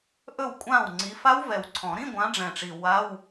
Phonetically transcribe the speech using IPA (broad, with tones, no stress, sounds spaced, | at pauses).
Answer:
ʔ ɵ˥˩ w kʷʼ ã˥˩ w ŋ͡ǀ i˨˦ f a˦˥ w v ɛ˨˩ w ǀʰ ɔ̃˨˩˦ ɾ ĩ˧˥˧ ɡʷ ã˨˦ ɖ͡ʐ ɛ̃˨˩ ʈ͡ʂ i˨˩ w a˧˥˧ w